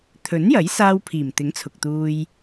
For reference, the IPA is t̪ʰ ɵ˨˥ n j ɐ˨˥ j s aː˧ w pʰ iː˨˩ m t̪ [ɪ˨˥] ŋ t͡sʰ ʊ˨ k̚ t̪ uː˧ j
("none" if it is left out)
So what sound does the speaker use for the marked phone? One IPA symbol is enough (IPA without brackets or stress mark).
ɪ˨˥